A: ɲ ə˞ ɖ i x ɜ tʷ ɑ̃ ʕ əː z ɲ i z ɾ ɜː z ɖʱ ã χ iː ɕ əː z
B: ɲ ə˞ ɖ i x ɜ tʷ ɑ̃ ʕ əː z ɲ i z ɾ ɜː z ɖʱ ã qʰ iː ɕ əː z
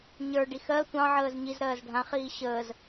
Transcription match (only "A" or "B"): A